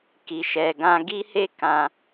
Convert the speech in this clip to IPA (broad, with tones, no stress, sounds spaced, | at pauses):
k i˨ ʃ ɛ˨ ɡ ã˧ ɡ i˦ h e˦ k ã˧